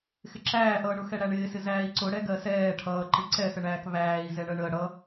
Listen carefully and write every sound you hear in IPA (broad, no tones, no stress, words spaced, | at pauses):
xɪǁæːʔʌːɳʊ xɛɽæɳɪːsɪ zæːi̯ǀʊɽɛ ɡɜsɛː ʈʰʌːǃɪ ǀɛsəɳæːk βæːi̯ zɛɳɜɳəː ɽʌ